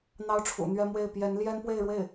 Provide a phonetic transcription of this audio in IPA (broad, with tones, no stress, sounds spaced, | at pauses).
n̪ ɑ˥ ʊ̯ ʈ͡ʂʰ ṵ˨˩ n̪ ɥ ɛ˥ m w e˥˩ ɪ̯ p j ɛ˧˥ n l j ɛ˥ n p w e˥˧ ɪ̯ ɻ w e˥˩ ɪ̯